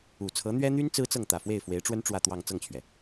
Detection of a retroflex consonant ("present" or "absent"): present